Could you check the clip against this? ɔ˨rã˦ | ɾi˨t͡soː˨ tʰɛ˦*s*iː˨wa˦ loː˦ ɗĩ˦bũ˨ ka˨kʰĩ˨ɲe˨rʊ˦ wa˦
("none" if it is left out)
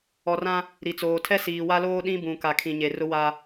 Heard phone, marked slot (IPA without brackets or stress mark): s